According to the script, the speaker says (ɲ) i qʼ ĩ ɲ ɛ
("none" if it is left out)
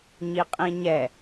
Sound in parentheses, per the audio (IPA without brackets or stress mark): ɲ